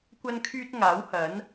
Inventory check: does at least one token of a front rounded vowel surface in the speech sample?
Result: yes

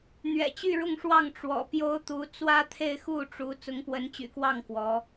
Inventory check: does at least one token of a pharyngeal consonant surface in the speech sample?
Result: no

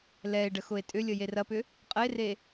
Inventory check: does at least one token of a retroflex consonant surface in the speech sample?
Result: yes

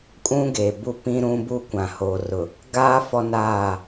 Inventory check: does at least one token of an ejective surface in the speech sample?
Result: yes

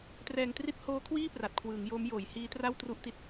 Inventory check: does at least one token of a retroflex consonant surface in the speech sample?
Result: no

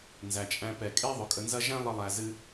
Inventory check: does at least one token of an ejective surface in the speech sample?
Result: yes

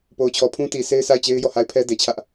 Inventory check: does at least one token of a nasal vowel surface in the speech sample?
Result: yes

